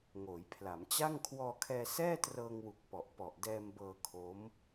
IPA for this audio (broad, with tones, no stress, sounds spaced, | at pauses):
ŋ oː˩˦ j pʰ l a˩˦ m t͡ɕ a˥˩ ŋ kʰ w ɔː˧ kʰ ɛː˧ s ɛː˥˩ t r ɤː˧ ŋ w u˨˩ k̚ p ɔ˨˩ ʔ p ɔ˨˩ ʔ d ɛː˧ m b ɤː˧ kʰ o˦˥ m